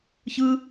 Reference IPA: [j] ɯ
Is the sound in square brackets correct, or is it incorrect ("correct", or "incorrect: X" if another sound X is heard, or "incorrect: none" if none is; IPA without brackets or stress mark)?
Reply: incorrect: ç